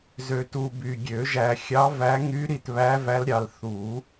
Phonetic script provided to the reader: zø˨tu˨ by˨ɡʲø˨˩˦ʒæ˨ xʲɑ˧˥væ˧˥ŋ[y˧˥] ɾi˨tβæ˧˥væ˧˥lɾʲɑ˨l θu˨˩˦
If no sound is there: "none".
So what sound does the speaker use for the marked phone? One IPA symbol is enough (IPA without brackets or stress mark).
y˧˥